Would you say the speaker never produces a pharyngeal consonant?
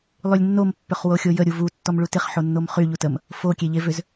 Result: no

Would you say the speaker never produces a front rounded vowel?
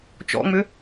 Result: no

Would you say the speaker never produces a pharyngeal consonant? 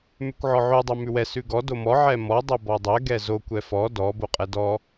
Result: no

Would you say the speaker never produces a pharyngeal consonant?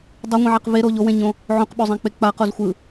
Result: no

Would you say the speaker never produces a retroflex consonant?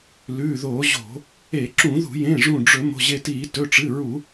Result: no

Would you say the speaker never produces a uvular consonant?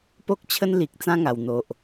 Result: yes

